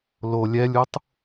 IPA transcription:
l o lʲ ɛ lʲ u tˤ

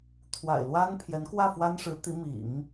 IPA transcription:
t̪ʰ w a̰˨˩ ɪ̯ l w a˥ n pʰ j ɛ˧˥ n k w ä˥˩ f w a˥ n ʂ ɻ̩˧˥ t̪ i˧˥ m ḭ˨˩˦ ŋ

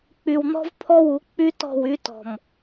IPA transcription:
k͡p y˨ w n̪ ɔ̤˦ v pʰ ɔ˦ w u˨˦ k͡p y˦ t ɔ̤˦˨ w y˦ t ɔ̤˨ m

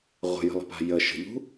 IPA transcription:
ʁʷ ə̤ j ə̤ lˠ ə̤ p a̤ j ə ʃ ə̤ ʎ ṳ

